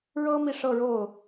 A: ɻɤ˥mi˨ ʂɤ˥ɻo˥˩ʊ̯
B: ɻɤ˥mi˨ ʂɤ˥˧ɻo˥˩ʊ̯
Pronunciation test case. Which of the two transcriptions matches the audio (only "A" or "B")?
B